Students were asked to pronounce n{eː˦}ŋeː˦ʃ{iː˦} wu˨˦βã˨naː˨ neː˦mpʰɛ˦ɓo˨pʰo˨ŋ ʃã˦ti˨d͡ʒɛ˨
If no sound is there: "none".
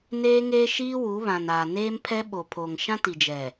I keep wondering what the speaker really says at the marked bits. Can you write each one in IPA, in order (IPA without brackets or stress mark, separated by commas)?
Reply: eː˦, iː˦